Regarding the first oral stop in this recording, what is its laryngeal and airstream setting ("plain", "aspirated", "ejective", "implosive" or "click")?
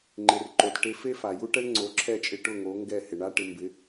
click